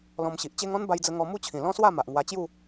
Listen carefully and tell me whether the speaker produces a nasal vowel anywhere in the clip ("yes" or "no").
yes